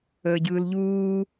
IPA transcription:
əːɟɯːlʎuː

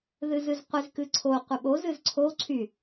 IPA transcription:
ðɨzɨzqʷɪz kɨǀʰo qʷɪɓo zɨzǀʰo ǀʰy

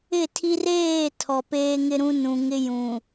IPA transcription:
ɪ˦˨tʰi˦r eː˦˨ tʰɔ˨peː˦ŋɪ˦ɾũ˦ nũ˨ŋɪ˦jũ˨

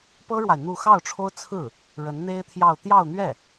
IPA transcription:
pɤ˥ɻwa˨ɪ̯ n̪u˥˧ xɑ˥˩ʊ̯ʈ͡ʂʰo˥ʊ̯ t͡sʰɹ̩˥˩ | ɻə˧˥nn̪e˥ɪ̯t̪ʰjɑ˥˧ʊ̯ t̪jɑ˥˧ʊ̯n̪ɥɛ˥˩

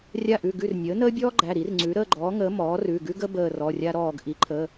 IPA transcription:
rʲa˦˨ʔʉ˩˧˩ɡʉ˦˨r nʲəː˩˥nəː˥bʲɔː˥ɡ͡ǃæ˩˧˩ ɾi˩˥rŋ͡ǀʉ˩˥ ɾəː˦˨ɡ͡ǃɔː˩˥ŋəː˩˥ mɔː˩˥rʉ˩˧˩ɡʉ˥ɡə˥ bəː˦˨rɔ˩˧˩rʲa˥ɾɔː˦˨ɡ ʔi˩˥ǃʰə˩˧˩

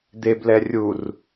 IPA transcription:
d̪eblɛ rʲur

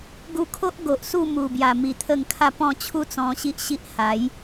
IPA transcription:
ɡu˧kʰo˦ʔ ɡo˨ʔsu˥˧mu˨˩bja˨˩ mi˨˩t̪ʰə˥˧ŋ kʰa˥˧pɔ̃˥˧ t͡ɕʰu˦t͡sɔ̃˧ɕi˦ʔ ɕi˦ʔha˨˦j

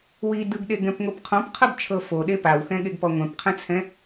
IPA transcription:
wi dɯɡɗeɡɛ̃pŋop qʰɔ̃pqʰɤbt͡ʃʰɤ foɗe pawxɛ̃ɠeɡpɔ ŋʷɛ̃pqʰɛ̃t͡sʰɛ̃

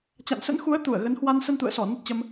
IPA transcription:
t͡ɕa̰˧˨nsə̰˧˥nxu˨˦ə̯ t̪u˧˩ə̯ɣə˨˦nhwa˧n sə˧nt̪ṵ˧˨ə̯sɔ˧˩ nə˦˥t̚t͡ɕə˧m

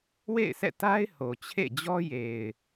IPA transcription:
wḛ˦˨ɪ̯sʰɛ̰˦˨ ta˦ɪ̯ ho˨t͡ɕʰḛ˦˨ d͡ʑɔ˦je˨ɪ̯

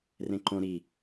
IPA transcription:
rẽǃõ ɾi

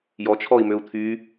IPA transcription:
jɔt͡ʃʰɔi̯møu̯ t̪ʰy

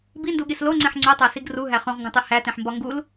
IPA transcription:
binduɠis loŋ͡ǀẽħ ŋ͡ǀotˤæsiɡ ruɦæ χõʁŋɡũtˤe hætẽħmbɒ ŋɡul

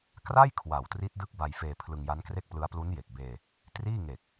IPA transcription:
kra˥˩j kʰwa˨˩wtri˦˥t̚ dɯ˦˥k̚ba˧jfeː˧ pʰlɯ˧ŋja˦˥nkre˥˩k̚plɯ˦˥a̯ plu˦˥nje˨˩k̚beː˧ | triː˥˩ŋe˨˩k̚

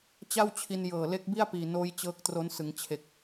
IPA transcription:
t͡ɕa˥˩wt͡ɕʰi˧n jɤː˨˩le˦˥k̚bi˥˩a̯ piː˨˩noː˦˥j t͡ɕɤː˦˥k̚tro˦˥n sɯ˩˦ŋt͡ɕʰe˨˩k̚

